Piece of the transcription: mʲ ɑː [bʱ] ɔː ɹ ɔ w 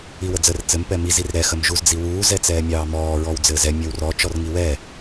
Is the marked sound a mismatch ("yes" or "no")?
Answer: yes